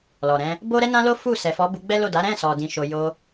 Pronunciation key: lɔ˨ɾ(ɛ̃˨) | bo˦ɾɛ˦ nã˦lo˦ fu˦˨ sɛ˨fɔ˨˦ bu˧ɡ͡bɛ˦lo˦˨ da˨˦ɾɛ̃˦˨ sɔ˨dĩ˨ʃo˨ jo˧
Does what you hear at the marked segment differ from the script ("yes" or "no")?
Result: yes